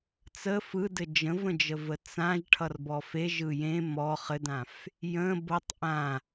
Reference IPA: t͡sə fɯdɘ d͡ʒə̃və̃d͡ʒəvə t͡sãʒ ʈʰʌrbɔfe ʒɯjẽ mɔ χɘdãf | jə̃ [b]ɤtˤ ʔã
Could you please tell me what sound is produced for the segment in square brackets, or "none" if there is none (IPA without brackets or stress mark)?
b